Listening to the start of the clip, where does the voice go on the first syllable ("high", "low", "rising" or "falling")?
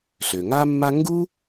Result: low